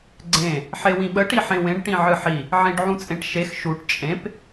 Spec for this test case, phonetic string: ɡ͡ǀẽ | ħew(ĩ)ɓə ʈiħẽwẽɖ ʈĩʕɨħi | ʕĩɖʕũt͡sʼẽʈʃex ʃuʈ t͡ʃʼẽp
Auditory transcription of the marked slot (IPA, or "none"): ĩ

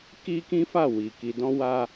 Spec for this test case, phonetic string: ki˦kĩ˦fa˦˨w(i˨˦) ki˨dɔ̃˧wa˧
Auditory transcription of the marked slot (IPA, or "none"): i˨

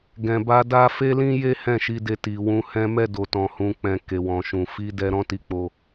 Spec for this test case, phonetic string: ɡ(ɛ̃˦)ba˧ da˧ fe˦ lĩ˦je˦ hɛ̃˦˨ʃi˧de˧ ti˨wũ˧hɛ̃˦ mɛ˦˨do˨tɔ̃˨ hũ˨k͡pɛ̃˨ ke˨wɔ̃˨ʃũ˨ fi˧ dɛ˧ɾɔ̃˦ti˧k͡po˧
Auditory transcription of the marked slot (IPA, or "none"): ɛ̃˨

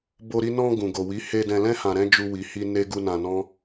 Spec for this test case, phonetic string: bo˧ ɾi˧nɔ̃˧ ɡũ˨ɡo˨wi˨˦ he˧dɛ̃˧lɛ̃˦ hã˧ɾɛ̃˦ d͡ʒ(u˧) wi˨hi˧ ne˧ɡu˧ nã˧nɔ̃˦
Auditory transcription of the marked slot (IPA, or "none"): u˧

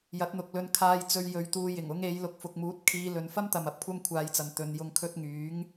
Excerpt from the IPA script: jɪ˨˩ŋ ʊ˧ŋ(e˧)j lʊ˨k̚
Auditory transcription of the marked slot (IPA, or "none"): e˨˧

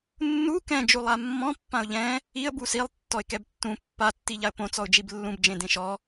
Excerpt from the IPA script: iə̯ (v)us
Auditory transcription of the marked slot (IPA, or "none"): b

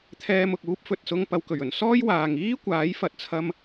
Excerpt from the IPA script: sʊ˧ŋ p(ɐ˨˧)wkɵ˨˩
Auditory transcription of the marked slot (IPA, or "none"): ɐ˨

